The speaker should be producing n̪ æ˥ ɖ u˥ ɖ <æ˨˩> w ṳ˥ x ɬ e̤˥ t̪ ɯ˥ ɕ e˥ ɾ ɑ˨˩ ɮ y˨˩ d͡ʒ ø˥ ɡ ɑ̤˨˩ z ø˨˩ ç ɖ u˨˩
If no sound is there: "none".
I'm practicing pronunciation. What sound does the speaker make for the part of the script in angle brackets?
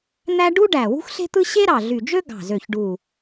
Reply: æ˨˩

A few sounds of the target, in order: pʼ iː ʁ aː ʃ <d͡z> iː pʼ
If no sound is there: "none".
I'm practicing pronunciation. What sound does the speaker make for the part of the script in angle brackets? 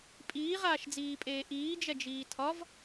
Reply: d͡z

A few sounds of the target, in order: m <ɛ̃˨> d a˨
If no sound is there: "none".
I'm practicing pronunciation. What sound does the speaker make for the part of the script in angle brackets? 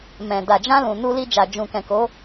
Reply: ɛ̃˨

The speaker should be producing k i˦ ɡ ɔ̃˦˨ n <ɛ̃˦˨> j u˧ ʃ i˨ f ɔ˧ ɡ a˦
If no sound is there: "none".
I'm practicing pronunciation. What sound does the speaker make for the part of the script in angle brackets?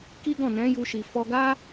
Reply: ɛ̃˨˦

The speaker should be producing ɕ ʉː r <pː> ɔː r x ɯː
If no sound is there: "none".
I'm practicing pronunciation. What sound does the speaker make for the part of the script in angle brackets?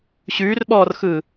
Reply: ɓ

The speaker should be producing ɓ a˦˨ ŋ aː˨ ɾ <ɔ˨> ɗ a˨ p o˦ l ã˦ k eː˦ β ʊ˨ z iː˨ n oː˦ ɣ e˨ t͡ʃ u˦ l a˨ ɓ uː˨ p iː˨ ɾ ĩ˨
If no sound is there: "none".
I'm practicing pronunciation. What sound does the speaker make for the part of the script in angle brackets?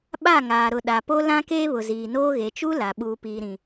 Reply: ʊ˨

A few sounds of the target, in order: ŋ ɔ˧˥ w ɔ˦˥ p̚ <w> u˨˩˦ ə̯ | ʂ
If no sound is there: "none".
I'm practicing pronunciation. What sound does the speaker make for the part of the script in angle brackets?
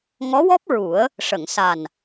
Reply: ɹ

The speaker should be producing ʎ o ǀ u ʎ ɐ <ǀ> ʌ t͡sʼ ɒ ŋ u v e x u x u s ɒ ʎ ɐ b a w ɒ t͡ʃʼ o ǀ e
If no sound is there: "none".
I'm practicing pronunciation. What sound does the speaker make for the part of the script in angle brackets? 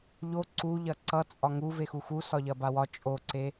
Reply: ǀ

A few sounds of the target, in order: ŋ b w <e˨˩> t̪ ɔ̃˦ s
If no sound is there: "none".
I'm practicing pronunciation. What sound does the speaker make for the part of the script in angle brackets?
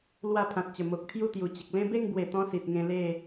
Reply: e˨˩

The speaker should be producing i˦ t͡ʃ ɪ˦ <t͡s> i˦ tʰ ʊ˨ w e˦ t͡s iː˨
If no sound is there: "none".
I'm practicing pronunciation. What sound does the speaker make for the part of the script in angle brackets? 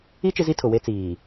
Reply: z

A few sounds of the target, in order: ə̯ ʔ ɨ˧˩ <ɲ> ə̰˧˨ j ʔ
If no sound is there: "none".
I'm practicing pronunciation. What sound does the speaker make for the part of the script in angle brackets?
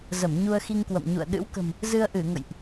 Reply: ŋ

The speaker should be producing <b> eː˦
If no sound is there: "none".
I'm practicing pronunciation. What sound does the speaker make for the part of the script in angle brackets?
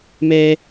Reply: m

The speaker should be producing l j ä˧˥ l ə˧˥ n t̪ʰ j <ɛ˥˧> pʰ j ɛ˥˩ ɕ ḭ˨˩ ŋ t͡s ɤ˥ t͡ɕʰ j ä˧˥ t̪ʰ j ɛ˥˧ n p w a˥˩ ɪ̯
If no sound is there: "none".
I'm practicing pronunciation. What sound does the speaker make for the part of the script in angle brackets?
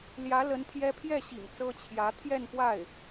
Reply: ɛ˥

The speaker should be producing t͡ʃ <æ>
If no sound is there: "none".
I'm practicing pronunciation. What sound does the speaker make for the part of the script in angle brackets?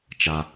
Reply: a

